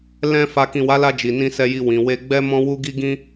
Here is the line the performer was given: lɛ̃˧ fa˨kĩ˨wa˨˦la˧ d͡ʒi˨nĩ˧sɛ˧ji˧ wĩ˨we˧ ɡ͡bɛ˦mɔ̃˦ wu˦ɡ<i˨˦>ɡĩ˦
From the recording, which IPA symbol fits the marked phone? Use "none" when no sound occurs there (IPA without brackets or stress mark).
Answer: i˦